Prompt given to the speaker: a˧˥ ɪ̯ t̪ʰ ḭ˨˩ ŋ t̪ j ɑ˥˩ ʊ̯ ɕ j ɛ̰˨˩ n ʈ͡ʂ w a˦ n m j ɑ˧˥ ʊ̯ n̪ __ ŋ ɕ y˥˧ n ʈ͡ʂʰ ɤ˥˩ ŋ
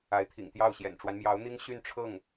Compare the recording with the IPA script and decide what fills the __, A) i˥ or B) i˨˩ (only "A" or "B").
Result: A